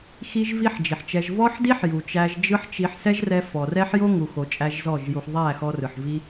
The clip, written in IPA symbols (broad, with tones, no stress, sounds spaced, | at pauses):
x i˦ ʒ v i˦ ħ d͡ʒ i˨ ħ t͡ʃ ɛ˧ ʒ v ɔ˦ ħ d i˦ ħ j u˨ t͡ʃ æ˧ ʒ d͡ʒ ɯ˦ ħ t͡ʃ i˧ ħ s ɛ˦ ʒ r ɛ˧ f ɔ˨ r ɛ˦ ħ j o˦ ŋ u˨ x o˧ t͡ʃʼ æ˦ ʒ z ɔ˦˨ ʒ j u˧ ħ ðˤ æ˦˨ x ɔ˧ r ɯ˨ ħ v i˧